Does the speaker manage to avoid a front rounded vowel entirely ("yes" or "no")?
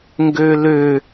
no